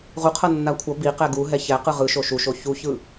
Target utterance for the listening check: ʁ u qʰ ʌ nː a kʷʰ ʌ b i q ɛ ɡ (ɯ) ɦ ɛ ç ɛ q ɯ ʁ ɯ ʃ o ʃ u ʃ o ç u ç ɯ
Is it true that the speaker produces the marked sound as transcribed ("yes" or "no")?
no